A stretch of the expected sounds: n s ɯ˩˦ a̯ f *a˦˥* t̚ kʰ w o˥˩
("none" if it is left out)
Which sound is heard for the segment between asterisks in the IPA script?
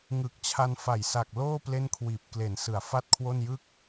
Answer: a˥˩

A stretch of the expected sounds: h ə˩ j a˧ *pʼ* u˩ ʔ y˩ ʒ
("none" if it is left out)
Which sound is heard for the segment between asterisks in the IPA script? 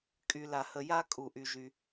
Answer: kʼ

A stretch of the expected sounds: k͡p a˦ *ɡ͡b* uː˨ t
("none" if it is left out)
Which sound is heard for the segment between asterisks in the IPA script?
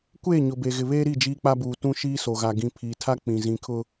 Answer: b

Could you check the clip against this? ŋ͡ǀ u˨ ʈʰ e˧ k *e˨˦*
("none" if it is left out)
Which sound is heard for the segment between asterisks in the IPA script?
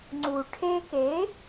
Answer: e˨˦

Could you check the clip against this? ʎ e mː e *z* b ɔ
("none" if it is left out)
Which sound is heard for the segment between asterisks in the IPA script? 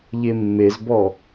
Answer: z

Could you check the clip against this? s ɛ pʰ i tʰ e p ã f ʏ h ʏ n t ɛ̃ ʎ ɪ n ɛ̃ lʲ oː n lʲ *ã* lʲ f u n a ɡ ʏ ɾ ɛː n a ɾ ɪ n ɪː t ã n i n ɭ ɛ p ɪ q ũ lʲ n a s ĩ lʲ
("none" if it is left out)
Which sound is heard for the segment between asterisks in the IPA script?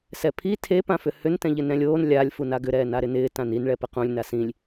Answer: a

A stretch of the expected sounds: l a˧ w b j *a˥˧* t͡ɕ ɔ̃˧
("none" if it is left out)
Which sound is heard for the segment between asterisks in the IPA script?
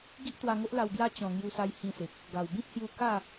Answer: a˦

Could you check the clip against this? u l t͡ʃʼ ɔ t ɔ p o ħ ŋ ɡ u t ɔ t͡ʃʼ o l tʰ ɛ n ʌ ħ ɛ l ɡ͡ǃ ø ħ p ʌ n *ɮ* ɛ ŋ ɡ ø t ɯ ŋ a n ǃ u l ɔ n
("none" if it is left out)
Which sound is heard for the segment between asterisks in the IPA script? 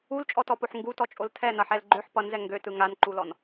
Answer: z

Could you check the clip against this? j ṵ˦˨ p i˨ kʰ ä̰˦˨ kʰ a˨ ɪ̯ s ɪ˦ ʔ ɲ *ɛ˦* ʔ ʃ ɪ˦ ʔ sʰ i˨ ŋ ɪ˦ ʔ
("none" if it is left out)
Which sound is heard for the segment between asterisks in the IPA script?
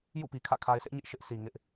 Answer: ɪ˦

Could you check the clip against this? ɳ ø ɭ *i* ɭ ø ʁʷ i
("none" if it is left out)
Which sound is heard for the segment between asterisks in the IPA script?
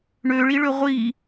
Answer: i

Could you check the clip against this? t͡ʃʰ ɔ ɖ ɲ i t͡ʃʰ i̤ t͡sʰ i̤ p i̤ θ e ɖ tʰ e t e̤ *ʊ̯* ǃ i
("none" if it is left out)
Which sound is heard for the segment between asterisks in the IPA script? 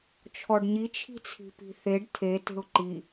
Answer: ʊ̯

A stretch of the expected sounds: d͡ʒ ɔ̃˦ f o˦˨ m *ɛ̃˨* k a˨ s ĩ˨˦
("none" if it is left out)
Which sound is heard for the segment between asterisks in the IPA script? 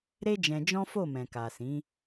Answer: ɛ̃˨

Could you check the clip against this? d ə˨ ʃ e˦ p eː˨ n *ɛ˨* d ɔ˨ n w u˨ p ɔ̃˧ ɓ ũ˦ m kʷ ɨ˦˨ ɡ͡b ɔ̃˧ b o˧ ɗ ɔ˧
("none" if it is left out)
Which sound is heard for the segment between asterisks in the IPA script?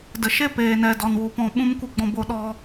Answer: ɛ˨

